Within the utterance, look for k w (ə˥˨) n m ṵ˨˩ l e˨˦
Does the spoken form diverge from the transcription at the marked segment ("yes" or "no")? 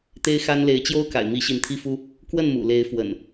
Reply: no